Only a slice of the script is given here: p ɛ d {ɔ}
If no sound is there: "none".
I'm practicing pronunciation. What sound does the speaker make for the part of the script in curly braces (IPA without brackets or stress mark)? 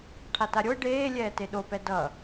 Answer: ʌ